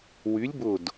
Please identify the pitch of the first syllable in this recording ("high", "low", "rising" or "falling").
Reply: rising